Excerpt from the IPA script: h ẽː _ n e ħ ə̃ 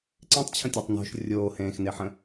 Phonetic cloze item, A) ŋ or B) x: B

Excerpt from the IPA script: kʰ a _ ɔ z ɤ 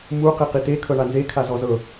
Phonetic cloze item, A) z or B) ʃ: A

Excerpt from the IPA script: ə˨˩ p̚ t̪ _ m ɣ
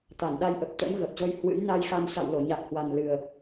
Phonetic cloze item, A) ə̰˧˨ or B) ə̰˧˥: B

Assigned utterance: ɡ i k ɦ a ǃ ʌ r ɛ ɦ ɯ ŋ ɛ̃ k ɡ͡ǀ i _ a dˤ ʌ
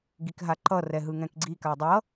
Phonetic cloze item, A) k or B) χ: A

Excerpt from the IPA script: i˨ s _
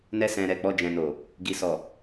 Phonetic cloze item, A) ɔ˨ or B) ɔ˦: A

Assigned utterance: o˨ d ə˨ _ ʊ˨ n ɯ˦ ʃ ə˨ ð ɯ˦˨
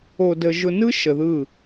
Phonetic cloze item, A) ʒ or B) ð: A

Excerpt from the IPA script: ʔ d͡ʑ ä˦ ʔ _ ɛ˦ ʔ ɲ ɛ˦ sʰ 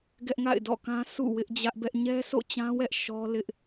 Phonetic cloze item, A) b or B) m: A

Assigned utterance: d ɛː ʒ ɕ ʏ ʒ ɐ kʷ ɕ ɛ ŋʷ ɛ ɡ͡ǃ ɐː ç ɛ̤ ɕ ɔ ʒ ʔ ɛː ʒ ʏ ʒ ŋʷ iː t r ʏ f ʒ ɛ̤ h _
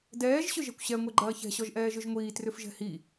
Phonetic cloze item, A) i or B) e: A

